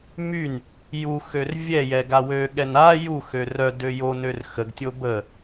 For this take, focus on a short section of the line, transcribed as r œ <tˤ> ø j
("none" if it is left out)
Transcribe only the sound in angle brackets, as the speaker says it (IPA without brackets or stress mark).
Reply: d